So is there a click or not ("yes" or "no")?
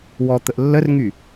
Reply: no